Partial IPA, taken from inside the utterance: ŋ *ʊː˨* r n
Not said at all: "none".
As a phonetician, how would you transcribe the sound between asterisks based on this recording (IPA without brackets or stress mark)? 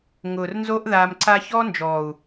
ʊː˨